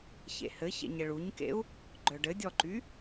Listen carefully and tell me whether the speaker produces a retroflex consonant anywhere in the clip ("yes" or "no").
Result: yes